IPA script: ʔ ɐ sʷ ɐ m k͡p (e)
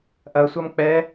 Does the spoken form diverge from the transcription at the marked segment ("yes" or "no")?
yes